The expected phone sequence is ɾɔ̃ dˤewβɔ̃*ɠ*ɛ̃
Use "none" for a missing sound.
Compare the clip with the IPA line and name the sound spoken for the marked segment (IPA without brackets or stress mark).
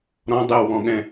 ɠ